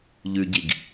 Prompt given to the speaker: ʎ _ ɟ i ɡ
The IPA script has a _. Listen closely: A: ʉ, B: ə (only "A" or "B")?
A